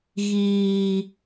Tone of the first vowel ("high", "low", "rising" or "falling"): low